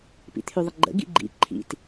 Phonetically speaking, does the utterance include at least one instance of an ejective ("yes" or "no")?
no